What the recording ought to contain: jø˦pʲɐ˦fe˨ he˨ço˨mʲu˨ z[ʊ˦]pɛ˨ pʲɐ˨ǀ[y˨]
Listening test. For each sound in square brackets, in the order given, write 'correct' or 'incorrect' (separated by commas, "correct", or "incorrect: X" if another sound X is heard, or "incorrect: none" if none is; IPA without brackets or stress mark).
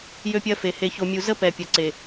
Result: incorrect: ə˦, incorrect: e˨